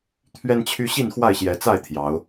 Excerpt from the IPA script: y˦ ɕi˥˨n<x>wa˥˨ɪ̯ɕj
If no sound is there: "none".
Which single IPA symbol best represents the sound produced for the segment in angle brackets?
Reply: x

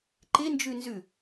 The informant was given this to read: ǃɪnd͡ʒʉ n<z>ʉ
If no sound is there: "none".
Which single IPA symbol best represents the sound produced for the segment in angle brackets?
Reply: z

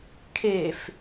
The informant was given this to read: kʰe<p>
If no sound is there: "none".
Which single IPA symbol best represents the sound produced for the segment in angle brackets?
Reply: f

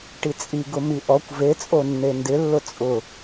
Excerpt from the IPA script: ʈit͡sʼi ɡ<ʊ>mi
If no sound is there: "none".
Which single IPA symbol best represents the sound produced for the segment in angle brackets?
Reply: ʊ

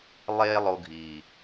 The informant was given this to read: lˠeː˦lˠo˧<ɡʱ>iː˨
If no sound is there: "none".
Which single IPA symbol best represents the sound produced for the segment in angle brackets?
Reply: ɡʱ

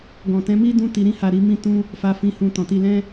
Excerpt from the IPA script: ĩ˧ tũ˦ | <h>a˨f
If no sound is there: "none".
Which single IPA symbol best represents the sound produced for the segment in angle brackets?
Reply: f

